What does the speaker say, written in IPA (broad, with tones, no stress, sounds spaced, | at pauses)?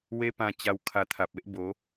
w e˦ p ã˧ t͡ɕ a˧ w kʰ a˧ t̪ʰ a˨ p̚ e˦ ʔ b o˨˦